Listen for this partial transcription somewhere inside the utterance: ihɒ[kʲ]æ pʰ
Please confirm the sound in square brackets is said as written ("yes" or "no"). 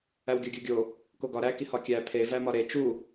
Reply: yes